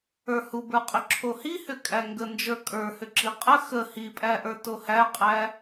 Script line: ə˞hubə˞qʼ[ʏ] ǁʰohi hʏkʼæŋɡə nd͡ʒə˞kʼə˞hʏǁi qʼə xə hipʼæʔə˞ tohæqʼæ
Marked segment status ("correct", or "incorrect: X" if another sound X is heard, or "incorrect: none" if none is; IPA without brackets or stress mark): correct